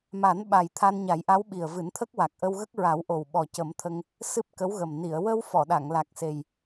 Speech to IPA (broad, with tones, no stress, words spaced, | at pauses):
ma˨˩˦nɓa˨˩j t̪ʰa˧nɲa˨˩˦jʔa˧˥w ɓi˨˩ə̯vɨ˨˩˦nt̪ʰə˦˥k̚wa˨˩k̚ ʔə˧wɣə˦˥k̚ɹa˨˩˦w ʔo˨˩wɓɔ˨˩ cə˨˩˦mt̪ʰə˧ŋ | sɨ˦˥p̚kə˧˥wɣə˨˩m ni˨˩˨ə̯ wə˧w fɔ˨˩˨ɗa˨˩˨ŋ la˨˩k̚se˨˩j